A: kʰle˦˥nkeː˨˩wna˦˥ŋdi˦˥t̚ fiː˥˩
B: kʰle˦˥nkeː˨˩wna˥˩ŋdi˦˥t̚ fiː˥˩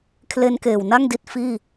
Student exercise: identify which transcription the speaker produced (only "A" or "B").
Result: B